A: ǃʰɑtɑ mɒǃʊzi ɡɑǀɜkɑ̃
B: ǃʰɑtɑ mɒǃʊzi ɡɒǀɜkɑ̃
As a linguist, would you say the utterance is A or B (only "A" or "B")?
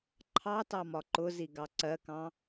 A